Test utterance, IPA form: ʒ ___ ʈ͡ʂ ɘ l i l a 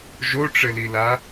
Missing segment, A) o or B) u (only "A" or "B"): A